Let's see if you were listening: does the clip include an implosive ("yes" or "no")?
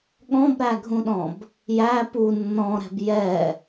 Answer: yes